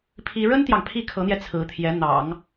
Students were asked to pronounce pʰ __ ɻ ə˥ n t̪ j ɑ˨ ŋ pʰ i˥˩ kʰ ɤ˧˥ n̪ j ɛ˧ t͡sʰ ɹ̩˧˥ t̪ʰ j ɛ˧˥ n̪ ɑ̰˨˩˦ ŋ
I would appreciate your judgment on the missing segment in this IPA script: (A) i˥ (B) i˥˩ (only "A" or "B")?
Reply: A